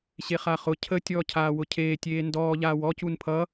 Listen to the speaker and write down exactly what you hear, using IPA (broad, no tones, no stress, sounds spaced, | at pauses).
ɕ e χ a χ ʊ cʰ ə tʲ ɔː cʰ aː w ʊ cʰ eː tʲ eː n d ɔː ʎ aː w ɔ c u n pʰ ʌ